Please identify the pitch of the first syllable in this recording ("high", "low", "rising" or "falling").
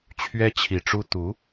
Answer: high